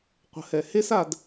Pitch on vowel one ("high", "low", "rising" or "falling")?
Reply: rising